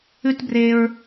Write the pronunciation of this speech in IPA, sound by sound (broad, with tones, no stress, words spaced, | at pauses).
ʉ˦tbre˧ɹ